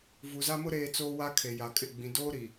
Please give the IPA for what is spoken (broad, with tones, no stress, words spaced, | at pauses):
vu˨za˦mʊ˦ ɾeː˦t͡soː˦wa˦ kʰe˨ja˨kʼɪ˦˨ ɡ͡bĩ˨doː˦ɾi˨